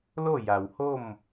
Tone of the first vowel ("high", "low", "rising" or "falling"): falling